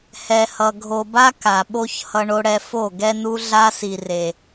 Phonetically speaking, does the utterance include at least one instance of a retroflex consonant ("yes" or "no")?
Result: yes